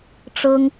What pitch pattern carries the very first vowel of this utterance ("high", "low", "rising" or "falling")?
high